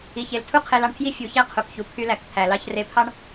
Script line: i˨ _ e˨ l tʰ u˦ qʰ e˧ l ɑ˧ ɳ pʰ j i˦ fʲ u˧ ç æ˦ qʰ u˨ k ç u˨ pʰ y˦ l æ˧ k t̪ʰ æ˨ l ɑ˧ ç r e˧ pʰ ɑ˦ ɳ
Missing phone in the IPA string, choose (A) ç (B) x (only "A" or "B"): A